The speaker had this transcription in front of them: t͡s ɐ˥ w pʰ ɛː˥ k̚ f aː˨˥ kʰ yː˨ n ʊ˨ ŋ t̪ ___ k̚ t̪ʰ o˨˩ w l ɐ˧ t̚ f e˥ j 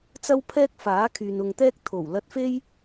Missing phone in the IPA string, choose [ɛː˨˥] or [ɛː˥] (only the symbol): ɛː˥